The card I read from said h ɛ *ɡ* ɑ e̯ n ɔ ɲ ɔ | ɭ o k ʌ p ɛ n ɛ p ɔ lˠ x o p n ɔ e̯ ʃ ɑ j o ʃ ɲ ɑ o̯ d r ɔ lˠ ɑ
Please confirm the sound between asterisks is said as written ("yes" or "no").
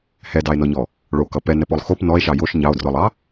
no